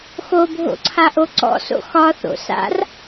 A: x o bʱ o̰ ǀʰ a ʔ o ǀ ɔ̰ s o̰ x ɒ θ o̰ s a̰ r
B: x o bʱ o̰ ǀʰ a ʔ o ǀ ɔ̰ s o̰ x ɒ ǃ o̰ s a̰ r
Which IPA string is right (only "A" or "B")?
A